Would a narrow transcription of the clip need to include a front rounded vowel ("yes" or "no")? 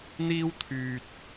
yes